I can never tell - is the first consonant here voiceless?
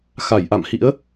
yes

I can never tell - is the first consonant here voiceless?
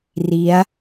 no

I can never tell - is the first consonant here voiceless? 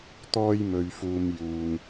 yes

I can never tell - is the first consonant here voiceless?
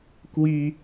yes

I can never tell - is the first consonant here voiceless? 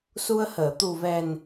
yes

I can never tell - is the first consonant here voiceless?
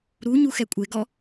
no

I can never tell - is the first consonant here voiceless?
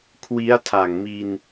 yes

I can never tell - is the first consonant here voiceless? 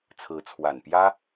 yes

